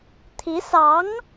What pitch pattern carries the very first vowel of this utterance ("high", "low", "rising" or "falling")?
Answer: rising